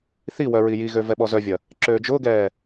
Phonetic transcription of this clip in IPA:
θ i w œ ɹ i j i ɣ ø v ɛ ɓ ɔ z œ vʲ ɐ | ǁ øː d͡ʒ ʊː ɡ ɛː

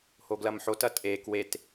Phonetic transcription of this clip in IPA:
h o ɡ l ɐ m ħ o t ɐ tʼ e k w e t

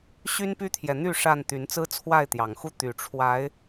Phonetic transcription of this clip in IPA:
ɕ y˦ n p y˦ t̪ʰ j ɛ˨ n̪ y˥˨ ʂ a˥˨ n t̪ y˨˦ n t͡s ɹ̩˦ t͡sʰ w a˥˨ ɪ̯ t̪ j ɑ˨˩ ŋ x u˥˨ t̪ y˨˩ ʈ͡ʂʰ w a˨˦ ɪ̯

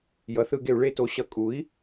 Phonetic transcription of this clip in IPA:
j ʌ˩˥ θ ɯ˧˩˧ ɡ e˧˩˧ u̯ ɭ e˦ t o˩˥ ɕ ʌ˩˥ kʼ u˩˥ i̯

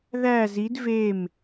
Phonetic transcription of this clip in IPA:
ð æ z i d v e m

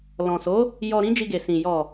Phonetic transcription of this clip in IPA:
l ɔ̃˨ s o˨˦ | j ɔ˧ ɾ ĩ˦ d͡ʒ i˧ ɡ e˨ s ĩ˨ j ɔ˨

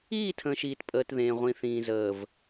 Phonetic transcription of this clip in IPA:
iː˦˨ tʰ ə̃ː˨ ʃ iː˨ t pʼ əː˨ t ð ẽː˨ ʁʷ ĩ˨ θ ĩː˨ z əː˨ v

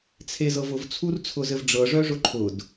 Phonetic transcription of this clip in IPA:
t͡sʰ e z ɤ v ʊ v t͡sʰ u r t͡sʰ ʊ z ɘ v ɖ͡ʐ ɤ ʐ œ ʐ ʊ ǃʰ ʊ d

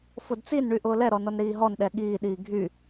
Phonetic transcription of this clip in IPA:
f ʊ d t͡s i n ɳ y ʔ ʊː l ɛ ɾ ɔ n ɔ n ɾ iː ɦ ɔ n ɗ ɛ ɠ iː ɗ iː ɡʱ y

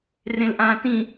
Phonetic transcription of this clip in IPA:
r ẽ l ʔ ãː t ĩ

